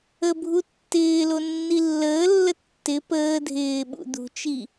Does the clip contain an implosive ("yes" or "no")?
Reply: yes